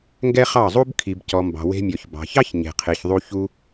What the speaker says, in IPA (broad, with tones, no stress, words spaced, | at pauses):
ŋɡɛ˦χɑ˦˨zˤu˦b kʰi˨bcɔ˨mbɑ̤˨ we̤˧mʲɔ˨ç bɑ̤˨çɑ˦ç ɲe̤˨qʰe˨çðˤu˧ çu˧